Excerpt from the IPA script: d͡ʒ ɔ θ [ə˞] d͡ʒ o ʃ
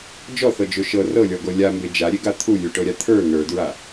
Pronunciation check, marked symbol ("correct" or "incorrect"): incorrect